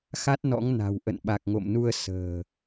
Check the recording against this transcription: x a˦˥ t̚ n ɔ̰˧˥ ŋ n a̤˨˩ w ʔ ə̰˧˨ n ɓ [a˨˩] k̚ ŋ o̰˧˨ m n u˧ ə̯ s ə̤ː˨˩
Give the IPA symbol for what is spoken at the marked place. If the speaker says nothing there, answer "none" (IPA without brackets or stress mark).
a˨˩